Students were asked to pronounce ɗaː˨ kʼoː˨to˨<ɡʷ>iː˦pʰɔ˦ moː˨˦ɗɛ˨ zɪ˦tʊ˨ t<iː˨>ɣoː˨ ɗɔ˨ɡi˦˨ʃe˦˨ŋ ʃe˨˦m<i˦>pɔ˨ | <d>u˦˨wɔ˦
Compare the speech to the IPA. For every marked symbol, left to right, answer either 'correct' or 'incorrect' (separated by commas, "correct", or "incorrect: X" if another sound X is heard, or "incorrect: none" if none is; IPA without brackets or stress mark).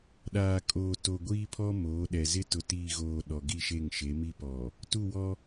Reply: correct, correct, correct, incorrect: t